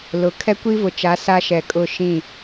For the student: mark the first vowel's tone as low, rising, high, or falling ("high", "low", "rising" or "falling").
rising